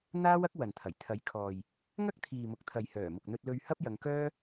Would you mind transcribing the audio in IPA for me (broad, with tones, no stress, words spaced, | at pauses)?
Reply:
n̪aː˥w ɐ˥k̚wɐ˨nt̪ʰɐ˨˩j t̪ʰɐ˨˥jkʰɔː˨j | ŋɐ˥k̚t̪ʰiː˨mʊ˨k̚t̪ʰɐ˨j hœː˨˩mʊ˨k̚n̪ɵ˧t̚ lɵ˧ɥhɐ˥p̚ jɐ˨˧ŋkœː˥